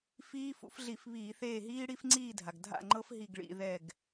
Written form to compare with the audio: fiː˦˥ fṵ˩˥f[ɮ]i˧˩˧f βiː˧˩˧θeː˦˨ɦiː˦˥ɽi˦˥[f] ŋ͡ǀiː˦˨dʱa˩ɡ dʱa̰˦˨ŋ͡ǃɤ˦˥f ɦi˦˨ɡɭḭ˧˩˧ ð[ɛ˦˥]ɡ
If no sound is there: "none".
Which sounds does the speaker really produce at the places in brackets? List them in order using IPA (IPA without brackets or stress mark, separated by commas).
ɮ, f, ɛ˦˨